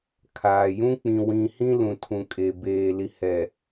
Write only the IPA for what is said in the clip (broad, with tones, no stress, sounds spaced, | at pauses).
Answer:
kʰ aː˨ j ũ˦ k͡p ĩ˨ w ĩ˨ h ĩ˦ l ũ˨ tʰ ũ˨ kʼ e˨ b eː˨ l i˨ h ɛ˨